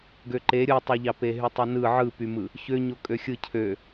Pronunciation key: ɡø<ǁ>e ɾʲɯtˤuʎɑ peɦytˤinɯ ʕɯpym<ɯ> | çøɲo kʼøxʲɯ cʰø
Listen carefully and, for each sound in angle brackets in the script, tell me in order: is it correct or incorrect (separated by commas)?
incorrect, correct